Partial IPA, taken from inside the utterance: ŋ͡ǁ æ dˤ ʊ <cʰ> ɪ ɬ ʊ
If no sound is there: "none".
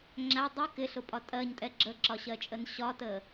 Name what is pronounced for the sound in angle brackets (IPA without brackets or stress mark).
k